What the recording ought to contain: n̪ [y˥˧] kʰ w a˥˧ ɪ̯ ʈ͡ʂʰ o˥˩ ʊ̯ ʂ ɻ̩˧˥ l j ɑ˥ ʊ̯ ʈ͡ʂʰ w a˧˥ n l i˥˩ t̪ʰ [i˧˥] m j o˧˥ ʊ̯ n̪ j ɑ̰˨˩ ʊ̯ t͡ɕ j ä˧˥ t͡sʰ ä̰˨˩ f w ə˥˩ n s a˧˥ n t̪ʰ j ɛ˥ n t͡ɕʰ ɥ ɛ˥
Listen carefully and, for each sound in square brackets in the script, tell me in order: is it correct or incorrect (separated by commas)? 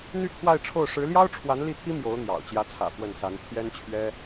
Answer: correct, incorrect